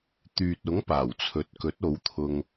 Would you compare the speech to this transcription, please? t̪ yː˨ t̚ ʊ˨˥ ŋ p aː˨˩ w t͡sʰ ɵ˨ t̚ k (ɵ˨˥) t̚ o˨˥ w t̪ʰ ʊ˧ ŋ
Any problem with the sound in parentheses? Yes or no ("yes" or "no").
no